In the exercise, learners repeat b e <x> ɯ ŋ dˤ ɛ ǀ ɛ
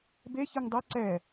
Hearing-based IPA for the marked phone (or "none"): ç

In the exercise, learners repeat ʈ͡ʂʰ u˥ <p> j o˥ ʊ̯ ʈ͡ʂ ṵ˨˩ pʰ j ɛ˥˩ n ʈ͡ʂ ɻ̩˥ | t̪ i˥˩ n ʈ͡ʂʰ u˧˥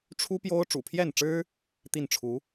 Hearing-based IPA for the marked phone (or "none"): p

